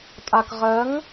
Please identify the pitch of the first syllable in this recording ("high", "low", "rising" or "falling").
low